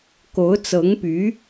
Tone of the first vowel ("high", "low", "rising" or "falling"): rising